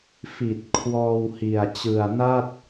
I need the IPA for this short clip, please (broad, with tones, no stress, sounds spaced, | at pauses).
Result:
f i˨˩ t̚ kʰ w ɔː˧ w h i˨˩ a̯ t͡ɕ ɯ˨˩ a̯ n a˥˩ t̚